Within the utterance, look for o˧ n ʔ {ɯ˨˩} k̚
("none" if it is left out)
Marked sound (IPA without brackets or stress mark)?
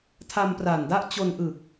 ɯ˨˩